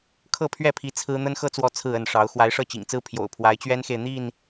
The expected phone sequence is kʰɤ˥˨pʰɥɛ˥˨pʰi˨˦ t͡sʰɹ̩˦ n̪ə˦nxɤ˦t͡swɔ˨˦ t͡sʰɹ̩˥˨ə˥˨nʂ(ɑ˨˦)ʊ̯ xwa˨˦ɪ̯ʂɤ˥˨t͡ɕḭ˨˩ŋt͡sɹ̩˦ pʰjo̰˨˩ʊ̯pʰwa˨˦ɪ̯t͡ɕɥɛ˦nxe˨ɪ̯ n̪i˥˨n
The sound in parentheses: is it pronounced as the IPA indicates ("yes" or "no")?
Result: yes